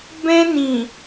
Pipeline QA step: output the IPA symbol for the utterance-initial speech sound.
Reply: b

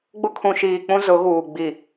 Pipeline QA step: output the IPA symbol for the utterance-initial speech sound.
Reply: ɡ͡b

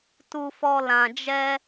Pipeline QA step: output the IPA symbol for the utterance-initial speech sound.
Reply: t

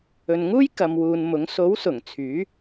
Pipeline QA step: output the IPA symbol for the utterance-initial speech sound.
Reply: ɵ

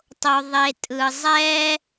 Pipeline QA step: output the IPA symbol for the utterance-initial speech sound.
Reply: tˤ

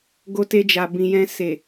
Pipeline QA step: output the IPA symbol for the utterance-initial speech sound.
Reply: ɡ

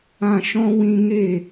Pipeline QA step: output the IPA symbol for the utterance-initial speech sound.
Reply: ã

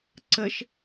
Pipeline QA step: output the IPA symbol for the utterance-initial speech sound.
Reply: ǀ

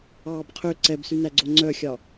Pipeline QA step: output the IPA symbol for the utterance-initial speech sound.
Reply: ɑː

